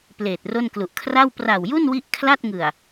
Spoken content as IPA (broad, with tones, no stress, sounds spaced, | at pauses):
p l eː˨˩ t̚ r o˥˩ n k l u˨˩ ʔ kʰ r a˥˩ w p r a˨˩ w j u˥˩ n w i˦˥ ʔ kʰ l a˥˩ t̚ ŋ ɯ˨˩ a̯